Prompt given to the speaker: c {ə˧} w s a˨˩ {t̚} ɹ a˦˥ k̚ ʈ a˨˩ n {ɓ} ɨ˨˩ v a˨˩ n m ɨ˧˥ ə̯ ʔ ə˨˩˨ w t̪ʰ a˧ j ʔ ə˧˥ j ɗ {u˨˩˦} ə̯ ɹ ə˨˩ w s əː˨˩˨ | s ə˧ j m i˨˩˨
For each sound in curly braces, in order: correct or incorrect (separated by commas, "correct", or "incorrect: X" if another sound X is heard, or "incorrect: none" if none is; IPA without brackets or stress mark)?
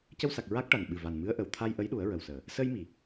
correct, incorrect: k̚, correct, correct